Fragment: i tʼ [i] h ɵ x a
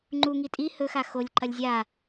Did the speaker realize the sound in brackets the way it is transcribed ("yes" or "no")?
yes